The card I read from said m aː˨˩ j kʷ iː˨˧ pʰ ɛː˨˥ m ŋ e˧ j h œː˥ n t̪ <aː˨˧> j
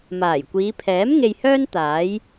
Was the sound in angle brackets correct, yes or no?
no